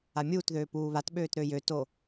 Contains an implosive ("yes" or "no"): yes